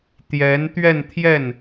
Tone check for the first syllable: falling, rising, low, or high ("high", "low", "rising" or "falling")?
rising